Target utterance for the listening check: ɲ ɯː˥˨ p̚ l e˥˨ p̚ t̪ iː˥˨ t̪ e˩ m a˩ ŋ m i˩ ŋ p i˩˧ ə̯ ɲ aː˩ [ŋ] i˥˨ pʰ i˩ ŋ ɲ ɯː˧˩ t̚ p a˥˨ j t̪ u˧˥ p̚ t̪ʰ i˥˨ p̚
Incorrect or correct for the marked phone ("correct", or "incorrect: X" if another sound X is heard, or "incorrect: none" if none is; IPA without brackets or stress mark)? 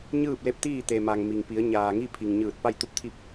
correct